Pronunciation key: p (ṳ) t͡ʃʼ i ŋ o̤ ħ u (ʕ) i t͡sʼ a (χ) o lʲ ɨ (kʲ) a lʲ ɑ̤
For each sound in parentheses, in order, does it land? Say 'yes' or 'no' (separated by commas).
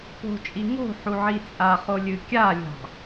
no, yes, yes, yes